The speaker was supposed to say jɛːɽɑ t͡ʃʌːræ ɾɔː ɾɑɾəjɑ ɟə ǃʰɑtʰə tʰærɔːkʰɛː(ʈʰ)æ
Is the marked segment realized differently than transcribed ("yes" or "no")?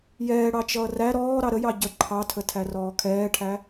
no